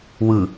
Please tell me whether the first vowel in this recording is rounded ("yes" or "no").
no